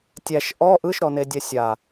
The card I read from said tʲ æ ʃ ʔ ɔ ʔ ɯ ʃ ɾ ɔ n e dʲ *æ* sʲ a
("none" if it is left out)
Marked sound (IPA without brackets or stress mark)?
ɛ